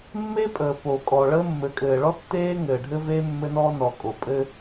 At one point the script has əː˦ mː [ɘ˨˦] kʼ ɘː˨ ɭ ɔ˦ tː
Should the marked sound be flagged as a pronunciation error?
no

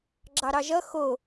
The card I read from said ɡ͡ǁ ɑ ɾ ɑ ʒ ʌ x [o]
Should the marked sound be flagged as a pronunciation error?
no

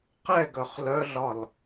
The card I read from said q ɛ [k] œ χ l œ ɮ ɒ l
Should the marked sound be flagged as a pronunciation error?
yes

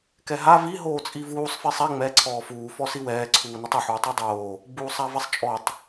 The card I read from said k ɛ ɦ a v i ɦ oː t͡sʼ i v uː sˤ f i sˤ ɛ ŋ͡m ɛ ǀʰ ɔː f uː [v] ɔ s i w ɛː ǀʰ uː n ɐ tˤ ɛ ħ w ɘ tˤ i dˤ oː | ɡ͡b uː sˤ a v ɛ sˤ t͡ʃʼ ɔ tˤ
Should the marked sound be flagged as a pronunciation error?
yes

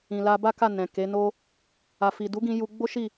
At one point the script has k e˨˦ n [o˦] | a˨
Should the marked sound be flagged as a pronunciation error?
no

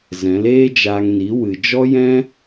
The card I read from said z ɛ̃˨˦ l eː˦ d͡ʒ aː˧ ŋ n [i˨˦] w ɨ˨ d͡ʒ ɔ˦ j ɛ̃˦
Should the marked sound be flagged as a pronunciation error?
no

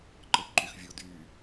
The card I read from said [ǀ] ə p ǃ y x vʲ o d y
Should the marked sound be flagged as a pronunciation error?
yes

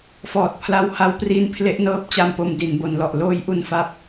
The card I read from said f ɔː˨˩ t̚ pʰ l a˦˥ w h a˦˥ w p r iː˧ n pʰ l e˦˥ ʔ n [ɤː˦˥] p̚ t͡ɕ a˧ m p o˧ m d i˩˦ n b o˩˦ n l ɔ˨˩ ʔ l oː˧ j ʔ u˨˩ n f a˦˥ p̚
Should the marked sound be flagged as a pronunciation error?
no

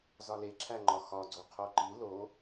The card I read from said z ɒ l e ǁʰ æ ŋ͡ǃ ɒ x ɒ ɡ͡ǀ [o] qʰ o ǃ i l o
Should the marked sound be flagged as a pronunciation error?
no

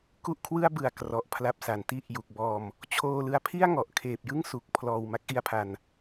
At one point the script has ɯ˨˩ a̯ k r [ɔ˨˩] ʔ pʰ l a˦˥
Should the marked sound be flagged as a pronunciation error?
no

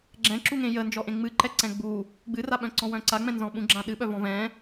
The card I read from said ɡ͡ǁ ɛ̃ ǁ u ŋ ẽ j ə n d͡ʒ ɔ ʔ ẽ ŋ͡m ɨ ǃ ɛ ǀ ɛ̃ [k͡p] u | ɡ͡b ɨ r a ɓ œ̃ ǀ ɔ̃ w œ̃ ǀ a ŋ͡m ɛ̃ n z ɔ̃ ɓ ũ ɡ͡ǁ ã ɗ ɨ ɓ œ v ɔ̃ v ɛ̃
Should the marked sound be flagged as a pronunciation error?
yes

